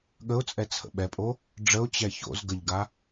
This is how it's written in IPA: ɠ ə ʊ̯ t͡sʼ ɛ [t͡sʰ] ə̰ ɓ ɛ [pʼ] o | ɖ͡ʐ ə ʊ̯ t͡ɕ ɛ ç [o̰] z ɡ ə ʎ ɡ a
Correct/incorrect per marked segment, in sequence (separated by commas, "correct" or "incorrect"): correct, correct, correct